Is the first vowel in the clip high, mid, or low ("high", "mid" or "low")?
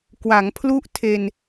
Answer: low